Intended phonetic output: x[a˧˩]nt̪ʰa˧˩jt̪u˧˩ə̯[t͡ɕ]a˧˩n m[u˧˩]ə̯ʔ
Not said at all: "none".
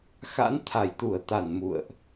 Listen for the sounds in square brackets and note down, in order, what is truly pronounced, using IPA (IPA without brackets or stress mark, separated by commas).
a̰˧˥, t̪, ṵ˧˨